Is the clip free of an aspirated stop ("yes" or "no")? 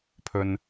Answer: no